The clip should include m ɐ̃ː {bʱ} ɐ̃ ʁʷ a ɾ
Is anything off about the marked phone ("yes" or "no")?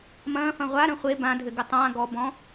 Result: yes